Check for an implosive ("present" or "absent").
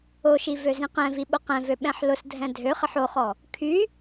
present